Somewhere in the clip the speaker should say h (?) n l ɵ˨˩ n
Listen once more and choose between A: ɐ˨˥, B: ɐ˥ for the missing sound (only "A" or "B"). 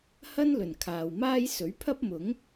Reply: B